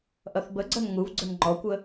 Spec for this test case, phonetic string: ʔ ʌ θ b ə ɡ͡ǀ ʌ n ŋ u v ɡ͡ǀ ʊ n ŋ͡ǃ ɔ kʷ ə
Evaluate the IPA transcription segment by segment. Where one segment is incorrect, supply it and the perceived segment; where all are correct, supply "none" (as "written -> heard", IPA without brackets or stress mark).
none